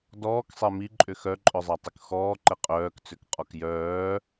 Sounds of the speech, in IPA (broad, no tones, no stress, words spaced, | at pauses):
dɔːksˤɛ miǃʼʏ xœǃʼœzˤatˤyk xɔːǃɛ qʼœːkt͡sʏkqʼɔk jœː